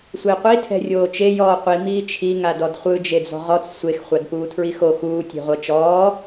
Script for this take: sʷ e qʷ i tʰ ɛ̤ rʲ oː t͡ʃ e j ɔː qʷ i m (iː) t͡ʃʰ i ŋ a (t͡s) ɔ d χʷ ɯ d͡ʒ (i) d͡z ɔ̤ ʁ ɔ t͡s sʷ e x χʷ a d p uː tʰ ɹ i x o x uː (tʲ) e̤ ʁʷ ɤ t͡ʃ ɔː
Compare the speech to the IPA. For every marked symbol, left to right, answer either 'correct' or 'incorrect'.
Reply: correct, incorrect, incorrect, correct

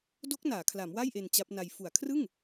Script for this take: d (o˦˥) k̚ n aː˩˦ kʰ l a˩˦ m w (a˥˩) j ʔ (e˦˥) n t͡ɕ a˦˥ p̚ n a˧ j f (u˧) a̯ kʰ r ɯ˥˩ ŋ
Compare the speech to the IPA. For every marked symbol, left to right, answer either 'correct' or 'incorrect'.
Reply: correct, correct, incorrect, incorrect

